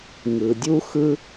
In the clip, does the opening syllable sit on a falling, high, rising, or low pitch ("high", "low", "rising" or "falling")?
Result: low